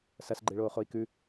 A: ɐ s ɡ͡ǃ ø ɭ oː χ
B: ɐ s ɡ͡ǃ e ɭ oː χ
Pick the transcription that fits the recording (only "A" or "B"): B